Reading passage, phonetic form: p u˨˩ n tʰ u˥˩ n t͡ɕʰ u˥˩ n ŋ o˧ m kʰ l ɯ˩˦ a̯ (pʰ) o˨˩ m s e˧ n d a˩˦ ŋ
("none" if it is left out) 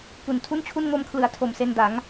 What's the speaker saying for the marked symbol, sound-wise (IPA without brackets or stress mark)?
tʰ